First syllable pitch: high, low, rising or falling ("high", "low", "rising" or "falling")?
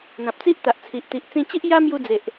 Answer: low